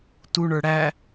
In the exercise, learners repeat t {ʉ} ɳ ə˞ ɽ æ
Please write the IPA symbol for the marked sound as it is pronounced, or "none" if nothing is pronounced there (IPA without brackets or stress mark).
u